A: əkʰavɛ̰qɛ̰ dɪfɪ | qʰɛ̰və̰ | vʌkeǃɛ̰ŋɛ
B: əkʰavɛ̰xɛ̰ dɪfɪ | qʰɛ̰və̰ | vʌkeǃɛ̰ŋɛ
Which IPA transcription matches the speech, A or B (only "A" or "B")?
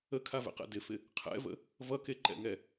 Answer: A